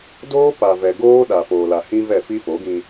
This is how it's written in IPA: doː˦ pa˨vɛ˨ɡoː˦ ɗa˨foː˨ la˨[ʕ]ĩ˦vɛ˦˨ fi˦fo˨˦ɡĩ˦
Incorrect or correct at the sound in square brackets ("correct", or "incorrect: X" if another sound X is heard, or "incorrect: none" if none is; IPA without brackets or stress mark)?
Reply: incorrect: h